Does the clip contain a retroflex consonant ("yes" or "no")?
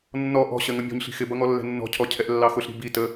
no